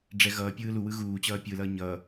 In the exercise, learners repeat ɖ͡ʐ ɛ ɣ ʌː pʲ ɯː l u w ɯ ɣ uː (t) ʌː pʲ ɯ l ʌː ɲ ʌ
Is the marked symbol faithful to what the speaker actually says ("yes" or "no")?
no